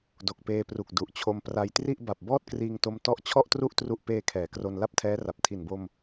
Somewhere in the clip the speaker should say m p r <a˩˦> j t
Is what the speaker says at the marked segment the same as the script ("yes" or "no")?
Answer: no